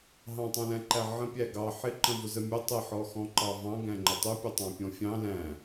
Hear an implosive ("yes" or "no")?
no